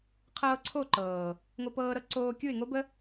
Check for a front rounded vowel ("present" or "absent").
absent